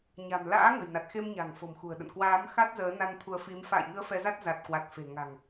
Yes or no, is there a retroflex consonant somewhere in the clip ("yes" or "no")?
no